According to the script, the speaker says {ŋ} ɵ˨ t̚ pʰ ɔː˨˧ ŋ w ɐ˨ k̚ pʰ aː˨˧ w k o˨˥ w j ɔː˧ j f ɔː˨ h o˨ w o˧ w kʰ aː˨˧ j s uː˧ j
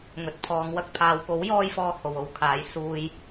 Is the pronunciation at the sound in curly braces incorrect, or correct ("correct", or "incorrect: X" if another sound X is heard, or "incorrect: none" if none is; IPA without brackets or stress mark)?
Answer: correct